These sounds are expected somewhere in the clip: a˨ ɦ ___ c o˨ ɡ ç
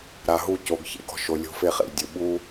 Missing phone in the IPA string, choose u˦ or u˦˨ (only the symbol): u˦˨